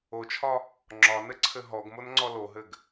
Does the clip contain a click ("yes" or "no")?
yes